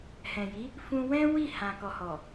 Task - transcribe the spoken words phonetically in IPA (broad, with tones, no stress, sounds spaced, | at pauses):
h ɛ̃˨ j i˨˦ | f ũ˧ w ɛ̃˦ w i˦˨ h ã˨ k ɔ˨ h ɔ˨